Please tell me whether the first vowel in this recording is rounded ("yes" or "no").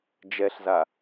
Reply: no